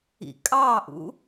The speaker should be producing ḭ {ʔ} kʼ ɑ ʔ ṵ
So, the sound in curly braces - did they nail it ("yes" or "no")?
no